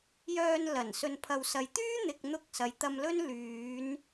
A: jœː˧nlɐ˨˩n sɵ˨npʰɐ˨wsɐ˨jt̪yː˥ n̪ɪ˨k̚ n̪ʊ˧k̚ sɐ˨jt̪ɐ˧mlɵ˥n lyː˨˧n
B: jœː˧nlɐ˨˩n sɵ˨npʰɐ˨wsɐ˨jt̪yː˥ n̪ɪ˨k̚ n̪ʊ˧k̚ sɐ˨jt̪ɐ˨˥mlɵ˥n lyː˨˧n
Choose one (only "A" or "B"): A